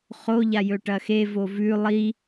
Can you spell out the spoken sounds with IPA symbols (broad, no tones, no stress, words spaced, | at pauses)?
χoʎa jɵʈɐxevo vʉ lˠi